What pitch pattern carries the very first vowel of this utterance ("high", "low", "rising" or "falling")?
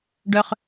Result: high